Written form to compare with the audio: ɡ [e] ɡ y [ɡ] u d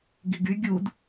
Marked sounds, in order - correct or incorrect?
incorrect: i, incorrect: ɡʲ

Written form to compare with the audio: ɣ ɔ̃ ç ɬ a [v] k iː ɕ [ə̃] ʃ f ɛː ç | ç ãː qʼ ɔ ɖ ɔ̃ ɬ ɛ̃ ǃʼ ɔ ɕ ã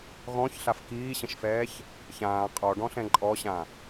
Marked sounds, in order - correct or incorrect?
incorrect: f, correct

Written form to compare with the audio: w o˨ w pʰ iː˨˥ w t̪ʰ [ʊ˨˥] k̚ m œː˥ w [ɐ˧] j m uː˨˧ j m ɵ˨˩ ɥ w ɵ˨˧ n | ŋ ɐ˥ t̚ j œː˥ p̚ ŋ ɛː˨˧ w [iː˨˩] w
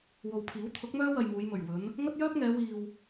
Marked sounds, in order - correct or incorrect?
correct, correct, incorrect: iː˨

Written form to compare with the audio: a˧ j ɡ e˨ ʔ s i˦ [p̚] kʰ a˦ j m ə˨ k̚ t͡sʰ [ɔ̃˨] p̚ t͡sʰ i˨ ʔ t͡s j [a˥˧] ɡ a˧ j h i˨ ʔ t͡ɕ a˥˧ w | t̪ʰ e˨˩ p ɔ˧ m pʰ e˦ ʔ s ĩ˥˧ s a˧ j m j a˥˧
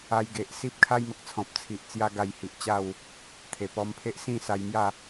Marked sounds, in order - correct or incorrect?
correct, correct, incorrect: a˦

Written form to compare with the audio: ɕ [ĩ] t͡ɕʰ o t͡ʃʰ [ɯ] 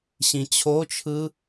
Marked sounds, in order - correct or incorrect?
correct, correct

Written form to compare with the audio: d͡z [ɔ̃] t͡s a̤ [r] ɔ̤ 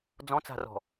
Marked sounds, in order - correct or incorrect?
correct, correct

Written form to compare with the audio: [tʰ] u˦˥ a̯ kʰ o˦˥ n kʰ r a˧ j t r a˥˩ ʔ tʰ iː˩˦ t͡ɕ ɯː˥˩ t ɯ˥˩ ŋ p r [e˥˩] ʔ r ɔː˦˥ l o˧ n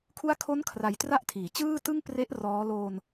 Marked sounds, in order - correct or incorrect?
incorrect: kʰ, incorrect: e˦˥

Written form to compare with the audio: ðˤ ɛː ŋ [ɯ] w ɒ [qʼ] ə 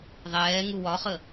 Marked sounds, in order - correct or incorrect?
incorrect: u, incorrect: χ

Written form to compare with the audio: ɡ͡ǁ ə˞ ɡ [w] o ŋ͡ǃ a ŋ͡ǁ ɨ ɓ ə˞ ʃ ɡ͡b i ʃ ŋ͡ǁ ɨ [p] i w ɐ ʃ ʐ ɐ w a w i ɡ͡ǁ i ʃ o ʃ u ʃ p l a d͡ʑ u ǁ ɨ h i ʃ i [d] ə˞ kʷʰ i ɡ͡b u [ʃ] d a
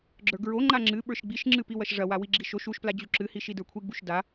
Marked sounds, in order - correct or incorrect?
incorrect: ɹ, correct, correct, correct

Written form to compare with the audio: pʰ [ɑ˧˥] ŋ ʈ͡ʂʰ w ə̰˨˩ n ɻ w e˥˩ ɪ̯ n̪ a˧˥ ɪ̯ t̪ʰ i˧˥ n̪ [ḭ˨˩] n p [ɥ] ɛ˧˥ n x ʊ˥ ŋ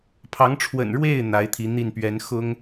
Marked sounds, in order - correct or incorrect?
correct, incorrect: i˥˩, correct

